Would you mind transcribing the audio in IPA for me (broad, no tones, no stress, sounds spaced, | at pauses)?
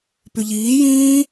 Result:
p y ʎ iː j ĩː